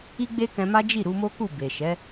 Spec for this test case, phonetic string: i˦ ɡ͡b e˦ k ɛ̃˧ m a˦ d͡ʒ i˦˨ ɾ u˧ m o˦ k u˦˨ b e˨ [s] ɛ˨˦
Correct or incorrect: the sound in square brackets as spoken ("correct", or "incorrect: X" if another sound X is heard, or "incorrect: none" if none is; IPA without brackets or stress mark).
incorrect: ʃ